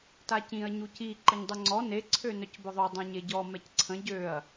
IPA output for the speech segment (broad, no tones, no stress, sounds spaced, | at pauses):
t a c ĩ ɐ̯ ɲ u c i ǃ ə ɲ dˤ œ ŋ͡ǀ ɔ n e ǀʰ ø n œ c b œ ðˤ o dˤ ã ɲ e ɟ ɔ m ɛ c ǀʰ ə̃ ɟ ø ɐ̯